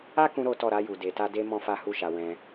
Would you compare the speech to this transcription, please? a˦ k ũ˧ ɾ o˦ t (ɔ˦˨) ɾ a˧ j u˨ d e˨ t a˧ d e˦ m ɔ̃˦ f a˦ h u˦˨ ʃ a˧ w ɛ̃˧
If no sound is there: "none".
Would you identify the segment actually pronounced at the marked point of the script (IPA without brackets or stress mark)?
ɔ˦˨